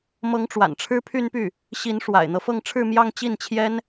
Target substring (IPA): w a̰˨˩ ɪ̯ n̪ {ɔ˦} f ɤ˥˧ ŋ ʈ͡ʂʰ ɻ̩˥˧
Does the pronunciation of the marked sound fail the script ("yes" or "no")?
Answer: yes